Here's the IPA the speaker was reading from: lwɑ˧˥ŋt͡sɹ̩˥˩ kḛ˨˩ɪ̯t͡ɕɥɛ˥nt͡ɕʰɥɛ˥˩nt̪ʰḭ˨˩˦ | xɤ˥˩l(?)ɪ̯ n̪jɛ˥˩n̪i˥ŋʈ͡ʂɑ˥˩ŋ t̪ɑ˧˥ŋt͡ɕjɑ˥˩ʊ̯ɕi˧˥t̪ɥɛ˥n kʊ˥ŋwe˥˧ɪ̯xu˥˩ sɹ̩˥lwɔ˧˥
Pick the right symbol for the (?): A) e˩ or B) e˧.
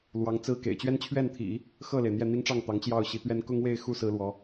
A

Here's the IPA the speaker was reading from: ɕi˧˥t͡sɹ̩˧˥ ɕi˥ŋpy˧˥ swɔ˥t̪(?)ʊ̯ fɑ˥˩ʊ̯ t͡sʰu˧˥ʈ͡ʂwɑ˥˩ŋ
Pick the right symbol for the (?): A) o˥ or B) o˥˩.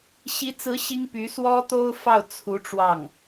A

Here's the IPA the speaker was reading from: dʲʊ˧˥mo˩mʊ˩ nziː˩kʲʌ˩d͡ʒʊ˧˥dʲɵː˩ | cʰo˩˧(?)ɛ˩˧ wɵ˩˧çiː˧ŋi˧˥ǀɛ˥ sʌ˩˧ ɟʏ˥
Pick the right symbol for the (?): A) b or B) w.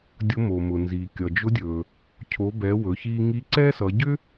A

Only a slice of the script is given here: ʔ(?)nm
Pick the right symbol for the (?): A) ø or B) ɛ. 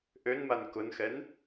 A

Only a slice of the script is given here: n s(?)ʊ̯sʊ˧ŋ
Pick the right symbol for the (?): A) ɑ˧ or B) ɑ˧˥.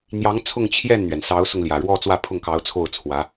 B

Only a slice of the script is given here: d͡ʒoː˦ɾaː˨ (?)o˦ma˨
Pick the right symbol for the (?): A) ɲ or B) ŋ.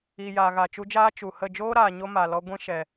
A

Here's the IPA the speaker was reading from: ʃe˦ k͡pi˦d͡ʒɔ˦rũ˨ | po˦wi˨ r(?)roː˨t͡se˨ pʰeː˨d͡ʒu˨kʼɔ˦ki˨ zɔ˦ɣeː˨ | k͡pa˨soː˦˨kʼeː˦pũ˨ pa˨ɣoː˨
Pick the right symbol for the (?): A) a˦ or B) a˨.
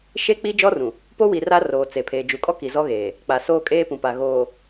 A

